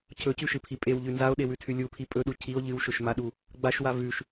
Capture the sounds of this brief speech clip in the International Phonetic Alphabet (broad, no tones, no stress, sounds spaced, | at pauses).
cʰ ɵ c ʉ ʃ ɨ pʰ i pʼ e w ʎ ʉ n z a o̯ ɗ e w ʉ tʰ ʉ lʲ u pʰ i pʼ ɵ ɗ u cʰ i o̯ ʎ ɨ w ʃ ɵ ʃ m a ɗ u | ɡ͡b a ʃ w a v ʉ ʃ